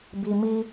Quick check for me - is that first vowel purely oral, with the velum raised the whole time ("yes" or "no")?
yes